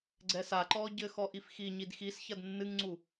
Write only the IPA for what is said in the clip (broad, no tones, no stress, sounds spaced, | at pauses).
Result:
ɡ͡ǀ ɛ s a ǃ ɔː ɟ ɘ x ɔ ʔ i f x i ɲ i d x i s ç ɐ d nː ɨ ŋ ŋ͡ǀ u